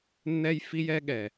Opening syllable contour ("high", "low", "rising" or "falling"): high